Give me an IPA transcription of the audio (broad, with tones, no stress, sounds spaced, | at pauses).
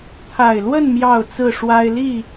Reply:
t̪ʰ a˨˩ ɪ̯ l w ə˥˨ n m j ɑ˥˨ ʊ̯ t͡s ɹ̩˥˨ ʂ w a˦ ɪ̯ l i˥˨